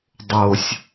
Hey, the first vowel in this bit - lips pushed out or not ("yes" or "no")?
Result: yes